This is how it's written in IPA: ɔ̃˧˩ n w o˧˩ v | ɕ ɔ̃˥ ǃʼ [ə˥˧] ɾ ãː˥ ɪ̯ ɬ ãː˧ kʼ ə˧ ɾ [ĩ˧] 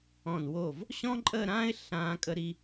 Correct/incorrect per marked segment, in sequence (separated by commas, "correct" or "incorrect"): correct, incorrect